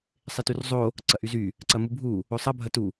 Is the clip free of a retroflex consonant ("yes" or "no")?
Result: yes